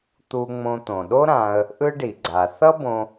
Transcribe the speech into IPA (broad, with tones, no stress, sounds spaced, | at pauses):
t̪ u˧ ŋ͡m õ˧ t̪ õ˩ ɗ o˥ ɾ ã˧ ə̯ | ʔ ɯ˥ ɖ i˩ ɡ͡ǀ a˩ θ ʌ˥ b õ˧